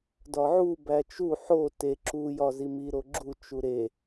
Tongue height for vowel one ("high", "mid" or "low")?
low